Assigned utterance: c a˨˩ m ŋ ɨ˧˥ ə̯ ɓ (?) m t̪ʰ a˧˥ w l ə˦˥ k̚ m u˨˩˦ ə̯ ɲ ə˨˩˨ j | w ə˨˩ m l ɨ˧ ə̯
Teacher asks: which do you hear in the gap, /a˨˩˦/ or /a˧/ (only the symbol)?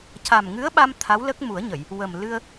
a˧